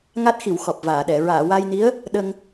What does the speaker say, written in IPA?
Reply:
ŋ a˦˥ t̚ x i˨˩˨ w x ɔ˨˩ p̚ v aː˨˩˨ ɗ ɛ˨˩˨ ɹ aː˨˩˨ w aː˧ j n i˧˥ ə̯ | ɗ ə˧ ŋ

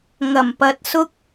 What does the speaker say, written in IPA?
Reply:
ŋ ɐ˨˩ m p ɐ˨ t̚ s ʊ˥ k̚

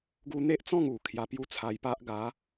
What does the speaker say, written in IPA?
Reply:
ɡ u˦ n̪ e˦ ʔ t͡s ɔ̃˥˧ ŋ u˨˩ kʰ j a˧ p j u˦ t͡sʰ a˧ j p a˦ ʔ ɡ a˨˦

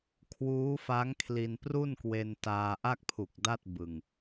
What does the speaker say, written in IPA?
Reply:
kʰ w uː˦˥ f a˦˥ ŋ kʰ l i˧ n p r u˥˩ n k w e˧ n t aː˧ ʔ a˥˩ k̚ pʰ u˨˩ k̚ d a˥˩ t̚ b ɯ˧ ŋ

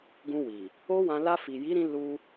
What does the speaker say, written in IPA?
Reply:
ɡ ũ˧ w i˨ | o˦ w ã˧ l a˧ f i˨ j i˨˦ ɾ ĩ˧ l u˧

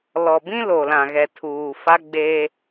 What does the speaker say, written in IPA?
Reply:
l ɔ˨ b ĩ˦ l o˨ l ã˨ ɣ ɛ˨ tʰ uː˨ f a˦ ɡ͡b eː˦

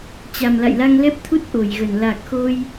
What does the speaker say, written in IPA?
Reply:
t͡ɕ a˨˩ m l a̰˧˨ j l a˧ ŋ l ɛ˦˥ p̚ t̪ʰ u˦˥ t̚ ʔ o˧˩ j ɣ ə˧˩ n l a˨˩ k̚ x o˧ j

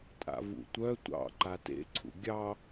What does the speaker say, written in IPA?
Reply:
tʼ a̰ v ṵ tʷ œ tʷ ɑ̰ ǃ a t ḛ ǀʰ ṵ ɡʲ ɑ

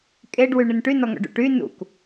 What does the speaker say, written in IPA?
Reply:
kʼ e ɖ w y ɳ ɘ n ʈ y n ɔ ŋ ɔ̰ ɖ ṵ ʈ y n ṵ k

